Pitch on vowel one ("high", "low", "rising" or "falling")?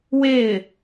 falling